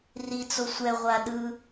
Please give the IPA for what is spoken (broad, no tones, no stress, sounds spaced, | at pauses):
r i t͡s o sʷ ɛ ʁʷ a ɗ ɯ